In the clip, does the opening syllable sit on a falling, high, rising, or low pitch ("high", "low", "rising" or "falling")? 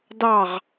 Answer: falling